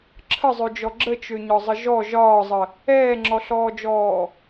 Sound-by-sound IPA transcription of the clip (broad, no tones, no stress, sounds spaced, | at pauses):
ǁʰ ə zˤ ø d͡ʒ ɔ ɡ͡ǁ ə t͡ʃ ø ɲ ɒ zˤ ə ʒ ɔ ʒ ɒː zˤ ə | ɛː ŋ͡ǁ ɔ ɬ ɔː d͡ʒ ɔː